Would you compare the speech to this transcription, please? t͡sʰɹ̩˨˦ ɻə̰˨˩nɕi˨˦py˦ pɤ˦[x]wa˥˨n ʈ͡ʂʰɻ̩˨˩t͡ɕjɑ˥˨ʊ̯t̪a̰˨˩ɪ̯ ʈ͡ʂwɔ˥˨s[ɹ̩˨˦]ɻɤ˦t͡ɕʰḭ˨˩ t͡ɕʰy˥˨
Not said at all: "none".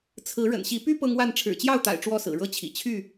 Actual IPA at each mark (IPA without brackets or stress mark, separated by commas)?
ŋ, ɹ̩˨˩